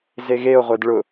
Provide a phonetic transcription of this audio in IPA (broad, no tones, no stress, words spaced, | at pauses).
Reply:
zeɣeo̯ʁʷœd ɭʊ